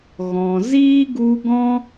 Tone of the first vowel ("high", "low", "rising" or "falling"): low